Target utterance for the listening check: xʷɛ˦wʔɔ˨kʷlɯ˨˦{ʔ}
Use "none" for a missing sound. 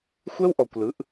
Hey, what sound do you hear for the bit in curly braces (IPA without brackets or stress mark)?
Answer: ʔ